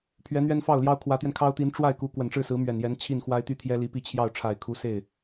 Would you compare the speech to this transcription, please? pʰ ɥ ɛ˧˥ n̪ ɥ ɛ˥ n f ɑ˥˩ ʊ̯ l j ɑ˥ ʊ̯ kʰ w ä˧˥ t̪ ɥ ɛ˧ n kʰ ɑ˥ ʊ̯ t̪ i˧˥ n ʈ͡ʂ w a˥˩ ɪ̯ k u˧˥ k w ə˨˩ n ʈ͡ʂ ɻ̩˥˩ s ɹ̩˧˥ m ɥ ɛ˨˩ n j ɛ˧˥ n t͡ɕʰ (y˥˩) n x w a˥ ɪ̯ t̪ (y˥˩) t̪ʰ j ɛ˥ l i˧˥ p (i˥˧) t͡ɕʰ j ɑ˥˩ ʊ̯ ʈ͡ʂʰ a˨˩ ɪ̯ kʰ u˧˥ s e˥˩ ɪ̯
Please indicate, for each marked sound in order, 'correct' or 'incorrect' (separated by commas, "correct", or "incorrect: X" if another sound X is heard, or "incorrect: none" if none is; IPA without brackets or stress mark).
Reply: incorrect: i˥˩, incorrect: y˥, correct